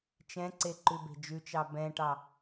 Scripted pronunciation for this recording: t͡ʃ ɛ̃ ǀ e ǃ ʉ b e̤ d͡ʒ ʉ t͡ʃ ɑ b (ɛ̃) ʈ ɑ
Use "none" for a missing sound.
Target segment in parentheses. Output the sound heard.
ɛ̃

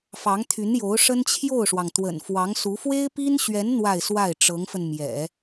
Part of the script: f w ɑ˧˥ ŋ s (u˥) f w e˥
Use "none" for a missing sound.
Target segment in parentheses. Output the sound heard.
u˧˥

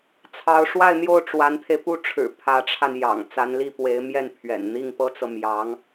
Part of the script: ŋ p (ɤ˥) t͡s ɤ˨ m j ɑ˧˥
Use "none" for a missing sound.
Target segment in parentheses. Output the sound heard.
ɤ˥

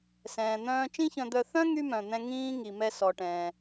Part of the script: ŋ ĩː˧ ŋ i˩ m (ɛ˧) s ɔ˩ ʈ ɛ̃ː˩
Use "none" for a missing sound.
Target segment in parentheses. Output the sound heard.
ɛ˧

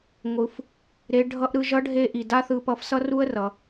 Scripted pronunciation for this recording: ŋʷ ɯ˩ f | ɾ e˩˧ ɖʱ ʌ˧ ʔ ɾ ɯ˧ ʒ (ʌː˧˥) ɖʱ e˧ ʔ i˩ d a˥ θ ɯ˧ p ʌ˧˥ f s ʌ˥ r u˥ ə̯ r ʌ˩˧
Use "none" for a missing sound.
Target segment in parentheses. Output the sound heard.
ʌ˧˥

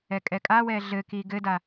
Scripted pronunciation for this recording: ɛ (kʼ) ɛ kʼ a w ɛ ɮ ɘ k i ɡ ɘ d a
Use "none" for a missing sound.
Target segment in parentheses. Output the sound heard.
kʼ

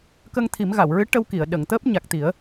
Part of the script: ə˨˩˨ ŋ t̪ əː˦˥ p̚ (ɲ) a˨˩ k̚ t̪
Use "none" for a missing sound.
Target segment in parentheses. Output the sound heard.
ɲ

